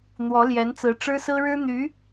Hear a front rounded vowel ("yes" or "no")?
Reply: yes